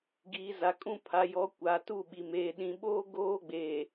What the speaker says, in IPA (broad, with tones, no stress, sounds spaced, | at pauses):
ɡ iː˨ z a˨ kʼ ũ˦˨ pʰ a˨ j ɔ˨˦ kʷ aː˨ t u˦˨ ɓ i˨ m eː˨ ɗ ĩ˨ ɓ oː˦ ɡ oː˦ ɡ͡b eː˨